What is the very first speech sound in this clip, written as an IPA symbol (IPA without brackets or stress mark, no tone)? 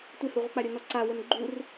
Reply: tʷ